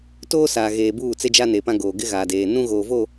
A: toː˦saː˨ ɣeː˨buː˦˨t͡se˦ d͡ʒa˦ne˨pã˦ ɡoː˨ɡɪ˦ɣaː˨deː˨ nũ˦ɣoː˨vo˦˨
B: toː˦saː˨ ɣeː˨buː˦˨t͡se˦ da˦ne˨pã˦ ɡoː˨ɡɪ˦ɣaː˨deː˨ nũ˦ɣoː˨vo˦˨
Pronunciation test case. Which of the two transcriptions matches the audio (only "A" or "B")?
A